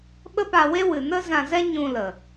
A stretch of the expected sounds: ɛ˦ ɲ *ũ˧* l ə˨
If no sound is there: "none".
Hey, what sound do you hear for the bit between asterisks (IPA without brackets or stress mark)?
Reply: ũ˧